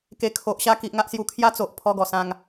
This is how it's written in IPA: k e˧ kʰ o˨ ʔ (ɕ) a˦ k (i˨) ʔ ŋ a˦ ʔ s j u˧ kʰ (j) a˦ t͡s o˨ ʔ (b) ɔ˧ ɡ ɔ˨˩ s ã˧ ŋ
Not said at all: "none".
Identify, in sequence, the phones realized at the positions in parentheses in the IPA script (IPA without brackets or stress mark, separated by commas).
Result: ɕ, i˨, j, pʰ